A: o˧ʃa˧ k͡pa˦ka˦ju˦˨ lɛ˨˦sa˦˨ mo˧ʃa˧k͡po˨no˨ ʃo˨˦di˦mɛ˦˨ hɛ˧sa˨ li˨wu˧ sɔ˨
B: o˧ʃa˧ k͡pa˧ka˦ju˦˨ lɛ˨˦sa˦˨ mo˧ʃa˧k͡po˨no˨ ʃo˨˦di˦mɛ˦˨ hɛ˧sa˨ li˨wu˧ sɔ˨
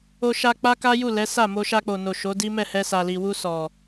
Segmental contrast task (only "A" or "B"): A